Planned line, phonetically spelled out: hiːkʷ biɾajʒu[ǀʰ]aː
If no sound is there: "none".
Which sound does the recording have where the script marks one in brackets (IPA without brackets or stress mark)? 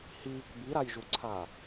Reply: ǀʰ